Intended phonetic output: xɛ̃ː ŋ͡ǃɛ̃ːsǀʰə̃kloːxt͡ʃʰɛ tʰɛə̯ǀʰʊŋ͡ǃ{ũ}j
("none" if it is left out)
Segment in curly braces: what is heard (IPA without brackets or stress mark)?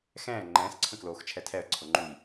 u